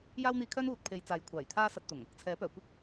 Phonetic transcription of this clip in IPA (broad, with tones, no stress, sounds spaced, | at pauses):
j aː˥ w n̪ iː˧ kʰ œː˥ n uː˨ t̚ pʰ e˨˧ j t͡s aː˨˥ j kʷʰ aː˨˩ j t̪ʰ aː˥ s ɐ˧ t̚ t̪ ʊ˨˩ ŋ | t͡sʰ ɛː˨˥ p œː˨˩ kʷ ɪ˥ k̚